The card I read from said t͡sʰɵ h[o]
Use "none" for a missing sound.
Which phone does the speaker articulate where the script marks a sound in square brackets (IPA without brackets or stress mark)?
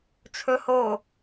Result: o